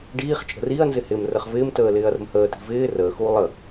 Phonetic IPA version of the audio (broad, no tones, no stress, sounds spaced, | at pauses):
ɖ iː χ t͡ʃʼ ə̤ r i ɐ̯ n z ɪ h ɪ m r ə χ v ɪː m t əː l ɪː ɐ̯ r ə̤ m h əː t i̤ v ɪː r əː x uː lˠ ə